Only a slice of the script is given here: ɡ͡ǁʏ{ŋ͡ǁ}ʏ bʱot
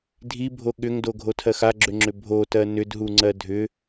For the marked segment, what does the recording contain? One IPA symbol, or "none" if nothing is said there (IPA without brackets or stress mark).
ŋ͡ǁ